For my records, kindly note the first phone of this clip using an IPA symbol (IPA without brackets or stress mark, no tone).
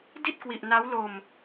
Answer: d